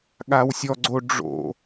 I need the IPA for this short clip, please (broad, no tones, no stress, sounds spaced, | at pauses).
ɠ a w sʲ ɔ ɡ͡ǀ o ɖ͡ʐ o̰